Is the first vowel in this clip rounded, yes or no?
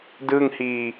no